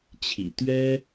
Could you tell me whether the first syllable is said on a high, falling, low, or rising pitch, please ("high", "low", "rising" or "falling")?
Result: low